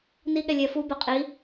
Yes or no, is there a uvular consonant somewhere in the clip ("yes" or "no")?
yes